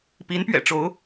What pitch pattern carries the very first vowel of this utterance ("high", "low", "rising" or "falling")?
rising